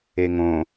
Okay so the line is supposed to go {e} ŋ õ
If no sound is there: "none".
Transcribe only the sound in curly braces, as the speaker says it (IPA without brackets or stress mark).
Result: e